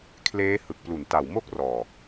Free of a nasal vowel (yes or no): yes